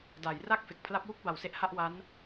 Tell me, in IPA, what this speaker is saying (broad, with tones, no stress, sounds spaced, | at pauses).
d a˩˦ j r a˥˩ k̚ f e˨˩ k̚ pʰ l a˦˥ p̚ w u˥˩ k̚ b a˨˩ w s e˦˥ ʔ h a˥˩ ʔ w a˦˥ n